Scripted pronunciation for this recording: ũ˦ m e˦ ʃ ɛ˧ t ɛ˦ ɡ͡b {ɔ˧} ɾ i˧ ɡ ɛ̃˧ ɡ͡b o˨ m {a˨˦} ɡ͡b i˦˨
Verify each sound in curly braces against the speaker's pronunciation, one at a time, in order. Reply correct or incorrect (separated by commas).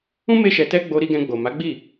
incorrect, correct